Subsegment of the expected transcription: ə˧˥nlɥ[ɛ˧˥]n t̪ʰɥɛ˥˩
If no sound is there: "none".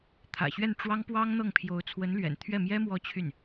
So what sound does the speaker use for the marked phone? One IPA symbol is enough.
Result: ɛ̰˨˩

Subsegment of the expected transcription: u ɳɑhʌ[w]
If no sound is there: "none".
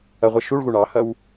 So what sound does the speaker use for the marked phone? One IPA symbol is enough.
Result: w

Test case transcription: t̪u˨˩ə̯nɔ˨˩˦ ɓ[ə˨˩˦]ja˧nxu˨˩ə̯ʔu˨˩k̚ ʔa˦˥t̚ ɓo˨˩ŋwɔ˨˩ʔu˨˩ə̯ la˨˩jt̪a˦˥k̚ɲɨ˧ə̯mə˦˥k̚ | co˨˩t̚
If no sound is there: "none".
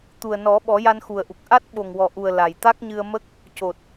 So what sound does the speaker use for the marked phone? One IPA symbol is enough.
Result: ɔ˨˩˦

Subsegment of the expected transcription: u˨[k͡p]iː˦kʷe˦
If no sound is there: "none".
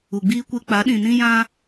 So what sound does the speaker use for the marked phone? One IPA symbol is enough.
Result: ɡ͡b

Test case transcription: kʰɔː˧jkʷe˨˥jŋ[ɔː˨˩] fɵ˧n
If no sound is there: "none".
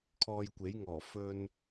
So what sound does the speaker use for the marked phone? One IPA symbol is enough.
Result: ɔː˨˩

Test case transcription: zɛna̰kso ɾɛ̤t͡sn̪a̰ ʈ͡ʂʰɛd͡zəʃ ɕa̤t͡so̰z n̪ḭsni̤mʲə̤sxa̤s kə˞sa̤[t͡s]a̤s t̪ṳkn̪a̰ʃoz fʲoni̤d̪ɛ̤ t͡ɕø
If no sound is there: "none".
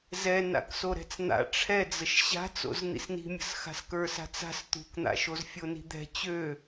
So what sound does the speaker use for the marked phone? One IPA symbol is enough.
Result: t͡s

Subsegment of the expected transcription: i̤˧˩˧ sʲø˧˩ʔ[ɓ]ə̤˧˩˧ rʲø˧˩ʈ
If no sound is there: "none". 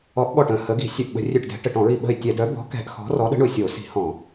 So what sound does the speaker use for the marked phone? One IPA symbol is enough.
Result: ɓ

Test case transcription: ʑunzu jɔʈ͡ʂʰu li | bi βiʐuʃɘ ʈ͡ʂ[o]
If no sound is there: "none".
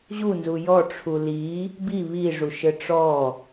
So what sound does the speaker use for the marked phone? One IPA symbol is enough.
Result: ɔ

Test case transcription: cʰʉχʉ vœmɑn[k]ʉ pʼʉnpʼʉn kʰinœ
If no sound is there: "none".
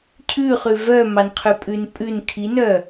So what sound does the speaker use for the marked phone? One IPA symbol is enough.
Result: qʰ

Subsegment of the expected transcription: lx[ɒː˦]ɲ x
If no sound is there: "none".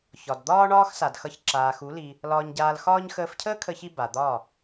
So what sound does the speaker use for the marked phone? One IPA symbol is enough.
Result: ɒː˦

